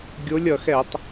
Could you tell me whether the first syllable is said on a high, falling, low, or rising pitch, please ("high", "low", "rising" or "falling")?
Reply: rising